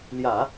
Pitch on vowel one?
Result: low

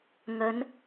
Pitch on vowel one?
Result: rising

